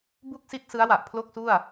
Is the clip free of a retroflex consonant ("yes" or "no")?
yes